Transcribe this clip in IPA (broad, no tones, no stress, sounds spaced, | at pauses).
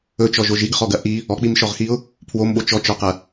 ɵ t͡ʃ ɔ ʒ o ʒ i ɡ χ ɔ ɡ ɐ ʔ i | ɔ k͡p i m ʃ ɔ ʁ x i ʊ̯ | pʰ w o m ɓ o t͡ʃ ɔ t͡ʃ ɔ q ɐ